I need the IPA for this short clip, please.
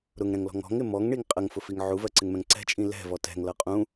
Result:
ɾ ʊ ŋ ɾ ɛ̃ ŋ l ɔ̤ ŋ ɔ̤ ŋ ɪ m ɔ ŋ ɳ i ŋ qʼ ə ŋ f ʊ f i ŋ ʕ u v ɜ ǀ ɪ ŋ m ɛ̃ ŋ ǀ ɛ̤ t͡ʃʼ ĩ l ɛ̤ v ɔ t ɛ̤ ŋ l ʌ qʼ ũ

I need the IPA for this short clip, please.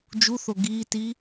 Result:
d͡ʒ u θ o ɡ iː t i

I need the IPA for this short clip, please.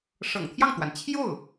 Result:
ʂ ɤ̰˨˩ ŋ t̪ʰ j ɑ˥˩ ŋ t̪ w a˩ n t͡ɕʰ j o˥˩ ʊ̯

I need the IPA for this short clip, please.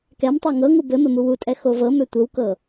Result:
k ɛ m tˤ ɤ ŋ ɤ ŋ u b ɘ m ɘ m u w u tʼ ɛ x o v ɤ m ø tʷ ɘ w k ɤ

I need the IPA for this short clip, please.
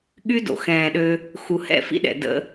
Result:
ɠ y˦ d o̰˨ x ɛ̃ː˨ ɗ ø˧ | x u˨ h ɛ̰˦˨ f ḭ˦ ɗ ɛ̰˨ d ə̰˦

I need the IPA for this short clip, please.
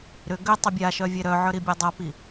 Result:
ɾ ʏ ɡ ʏ tˤ ʏ bʲ a ʃ œ vʲ ɛ ɾ œ ʕ œ ɾ i bʲ ɛ dˤ a p i

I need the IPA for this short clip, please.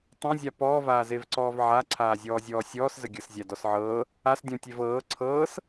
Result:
tˤ ɐ̃ zʲ a p ɔː v aː z e v ǀ ɔː v ʕ a ǀʰ aː zʲ ɔː zʲ ɔː sʲ ɔː s z ə ɡʲ ɤ s zʲ a d ɔ s ʕ ɤː | a s dʲ ɔ̃ tʲ e v ɤː ǀʰ ɤː s

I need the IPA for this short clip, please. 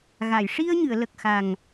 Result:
ɣ a˨˩˨ j ʂ i˧ ə̯ ɲ ɨ˨˩˨ ə̯ l ə˨˩ k̚ x a˨˩ ŋ

